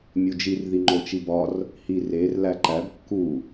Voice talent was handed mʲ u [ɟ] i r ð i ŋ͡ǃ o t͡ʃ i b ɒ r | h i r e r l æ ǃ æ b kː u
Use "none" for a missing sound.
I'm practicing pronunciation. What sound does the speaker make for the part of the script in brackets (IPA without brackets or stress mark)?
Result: d͡ʒ